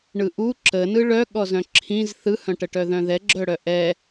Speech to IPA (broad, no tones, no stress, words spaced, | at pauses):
ɳɯʔu ǁənɯ ɭœɠɔzœ̃ ǁʰĩz θɯhœ̃ʈəʈœ ðœ̃ðɛɡ͡ǁœ ɽœʔɛ